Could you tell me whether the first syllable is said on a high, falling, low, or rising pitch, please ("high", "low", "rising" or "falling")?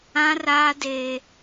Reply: high